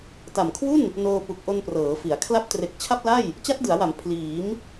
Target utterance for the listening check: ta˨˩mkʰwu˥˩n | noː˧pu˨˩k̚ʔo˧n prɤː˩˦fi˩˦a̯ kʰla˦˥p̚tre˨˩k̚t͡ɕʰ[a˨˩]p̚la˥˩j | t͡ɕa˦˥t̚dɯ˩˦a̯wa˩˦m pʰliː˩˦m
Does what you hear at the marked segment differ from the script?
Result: yes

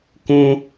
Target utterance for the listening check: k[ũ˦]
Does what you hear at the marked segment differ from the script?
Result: no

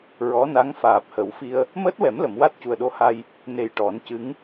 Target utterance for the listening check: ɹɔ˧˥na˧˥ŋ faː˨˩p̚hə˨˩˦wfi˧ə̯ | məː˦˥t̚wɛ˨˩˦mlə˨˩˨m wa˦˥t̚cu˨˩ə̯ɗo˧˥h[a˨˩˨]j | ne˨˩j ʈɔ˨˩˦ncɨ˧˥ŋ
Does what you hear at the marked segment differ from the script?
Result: yes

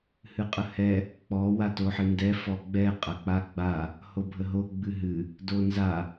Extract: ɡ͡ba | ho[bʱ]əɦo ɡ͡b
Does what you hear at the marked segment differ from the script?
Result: no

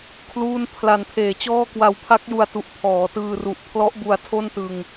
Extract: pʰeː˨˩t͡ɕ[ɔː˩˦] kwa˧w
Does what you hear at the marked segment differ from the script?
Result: yes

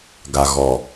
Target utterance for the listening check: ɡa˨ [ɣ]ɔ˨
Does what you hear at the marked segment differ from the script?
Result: no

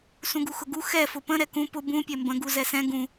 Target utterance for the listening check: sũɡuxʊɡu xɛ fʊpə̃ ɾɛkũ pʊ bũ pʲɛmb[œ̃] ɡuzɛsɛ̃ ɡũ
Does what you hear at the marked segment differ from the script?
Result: yes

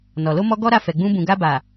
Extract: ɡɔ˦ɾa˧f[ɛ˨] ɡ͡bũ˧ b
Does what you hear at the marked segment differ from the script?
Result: no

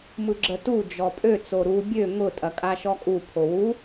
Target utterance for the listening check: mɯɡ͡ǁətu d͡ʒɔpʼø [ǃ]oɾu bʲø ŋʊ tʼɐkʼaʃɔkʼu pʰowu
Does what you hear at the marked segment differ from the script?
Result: yes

